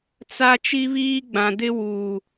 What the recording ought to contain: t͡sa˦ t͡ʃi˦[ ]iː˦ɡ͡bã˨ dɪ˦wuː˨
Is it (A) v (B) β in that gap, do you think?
B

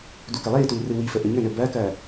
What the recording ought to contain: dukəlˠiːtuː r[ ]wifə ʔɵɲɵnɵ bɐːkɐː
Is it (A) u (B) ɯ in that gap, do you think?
B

